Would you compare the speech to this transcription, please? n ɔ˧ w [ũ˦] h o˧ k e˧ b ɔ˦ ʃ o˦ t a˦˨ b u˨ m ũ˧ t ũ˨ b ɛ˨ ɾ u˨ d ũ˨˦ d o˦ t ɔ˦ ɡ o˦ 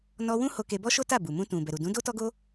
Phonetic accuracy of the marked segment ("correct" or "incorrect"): correct